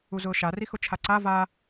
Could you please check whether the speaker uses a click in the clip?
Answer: yes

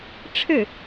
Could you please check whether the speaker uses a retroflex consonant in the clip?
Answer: yes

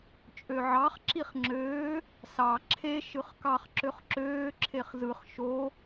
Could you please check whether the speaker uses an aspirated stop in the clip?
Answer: yes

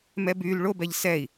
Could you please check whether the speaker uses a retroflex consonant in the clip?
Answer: yes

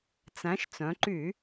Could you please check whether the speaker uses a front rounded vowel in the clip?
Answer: yes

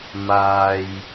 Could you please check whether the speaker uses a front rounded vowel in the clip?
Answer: no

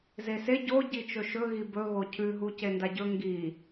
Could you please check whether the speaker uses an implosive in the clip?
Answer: no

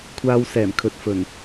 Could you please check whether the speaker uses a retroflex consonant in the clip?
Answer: no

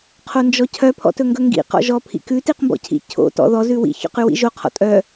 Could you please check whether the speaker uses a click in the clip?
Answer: no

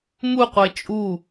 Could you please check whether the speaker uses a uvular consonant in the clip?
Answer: yes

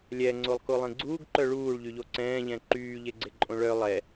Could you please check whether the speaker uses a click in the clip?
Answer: yes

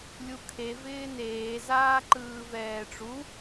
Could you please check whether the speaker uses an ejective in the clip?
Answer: no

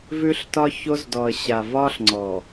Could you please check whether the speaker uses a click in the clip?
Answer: yes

